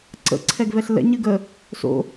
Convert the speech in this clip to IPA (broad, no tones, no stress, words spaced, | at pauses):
ǀə̰ ǀʰɛɡvɛɬlɛ̰ ɲɨɡə | so̰